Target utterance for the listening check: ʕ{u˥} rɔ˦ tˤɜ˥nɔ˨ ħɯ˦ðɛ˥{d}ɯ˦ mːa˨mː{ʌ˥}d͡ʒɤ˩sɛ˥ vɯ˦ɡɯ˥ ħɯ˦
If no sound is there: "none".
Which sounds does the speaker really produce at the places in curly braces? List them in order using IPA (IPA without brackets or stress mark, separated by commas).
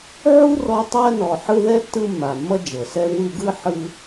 u˥, tː, ʌ˥